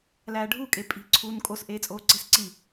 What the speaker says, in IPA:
l æː ɖʱ u kʼ e pʼ i̤ ǀʰ uː n kʼ o s ʔ eː t͡sʼ oː ǀ e̤ s ǀ i

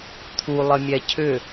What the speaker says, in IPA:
t̪ʰ u lˠ ə mʲ ɛ cʰ ʏ

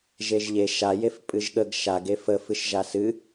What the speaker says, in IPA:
ʒ e ʒ ʎ e ʃ a j e f pʼ ɨ ʒ ɠ ə ɡ ʃ a ɡ e f ə f ɨ ʃ ʒ a s ɨ

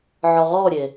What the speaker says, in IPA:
ʕ ɔ ʁ ɔ ɾʲ e

